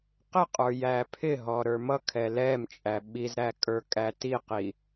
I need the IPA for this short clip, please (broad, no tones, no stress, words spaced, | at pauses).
qɪqʼə˞ jæpʰɪɦɔ ɾə˞mʌkʰɛ lɛmt͡ʃʼæ ɓizɾæ kʼə˞kʼætiqi